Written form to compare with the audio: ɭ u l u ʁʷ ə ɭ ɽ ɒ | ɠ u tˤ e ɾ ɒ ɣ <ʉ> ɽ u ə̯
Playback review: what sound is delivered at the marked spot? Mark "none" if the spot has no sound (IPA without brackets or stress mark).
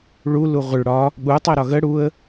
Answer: ə